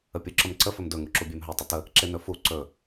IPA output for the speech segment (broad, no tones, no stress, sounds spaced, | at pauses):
ə pʲ u ǁ ə m ǀ ə f ɵ m d ɵ ŋ u ǁ u bʲ e m ɦ ɵ tˤ ə t ə | ǁ e n ɵ f u ǀ ɵ